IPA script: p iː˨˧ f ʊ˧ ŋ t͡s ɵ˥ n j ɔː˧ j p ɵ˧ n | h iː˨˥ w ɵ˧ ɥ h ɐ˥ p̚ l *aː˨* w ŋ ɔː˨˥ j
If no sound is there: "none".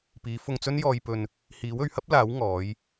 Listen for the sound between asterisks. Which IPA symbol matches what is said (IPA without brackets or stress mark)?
aː˨˥